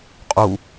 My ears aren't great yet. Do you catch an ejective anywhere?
yes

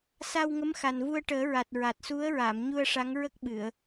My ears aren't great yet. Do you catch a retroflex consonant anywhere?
yes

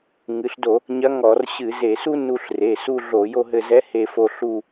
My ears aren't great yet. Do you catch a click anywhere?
no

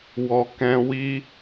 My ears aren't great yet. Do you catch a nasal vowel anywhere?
yes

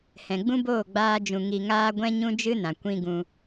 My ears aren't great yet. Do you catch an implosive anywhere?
no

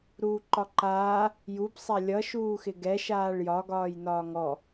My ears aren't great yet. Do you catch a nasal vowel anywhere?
no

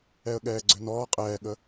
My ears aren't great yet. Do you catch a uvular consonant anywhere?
yes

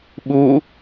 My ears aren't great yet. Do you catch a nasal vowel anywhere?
no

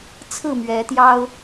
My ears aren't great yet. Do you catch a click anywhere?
no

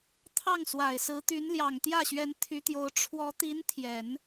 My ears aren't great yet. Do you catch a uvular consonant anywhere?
no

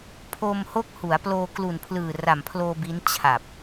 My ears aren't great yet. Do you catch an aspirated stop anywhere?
yes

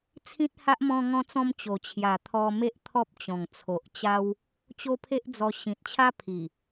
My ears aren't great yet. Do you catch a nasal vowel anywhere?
yes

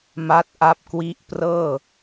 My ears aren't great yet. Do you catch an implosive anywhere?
no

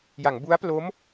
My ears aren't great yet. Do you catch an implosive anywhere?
no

